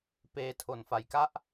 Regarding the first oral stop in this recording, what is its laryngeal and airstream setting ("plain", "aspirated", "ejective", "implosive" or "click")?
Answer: plain